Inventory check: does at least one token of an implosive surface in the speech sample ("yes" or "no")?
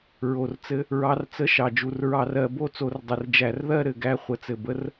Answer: no